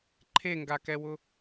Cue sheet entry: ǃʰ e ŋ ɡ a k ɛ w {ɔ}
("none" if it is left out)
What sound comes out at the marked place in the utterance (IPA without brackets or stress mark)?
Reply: ʊ